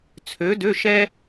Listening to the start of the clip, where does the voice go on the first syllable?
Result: rising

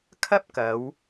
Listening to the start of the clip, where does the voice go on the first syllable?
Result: high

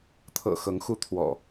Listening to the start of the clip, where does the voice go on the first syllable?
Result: low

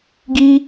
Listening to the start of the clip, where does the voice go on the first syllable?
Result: high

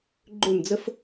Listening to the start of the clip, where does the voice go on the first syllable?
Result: falling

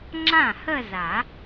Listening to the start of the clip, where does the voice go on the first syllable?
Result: falling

